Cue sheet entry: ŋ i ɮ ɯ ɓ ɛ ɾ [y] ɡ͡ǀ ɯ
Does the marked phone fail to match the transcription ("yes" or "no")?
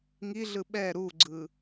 yes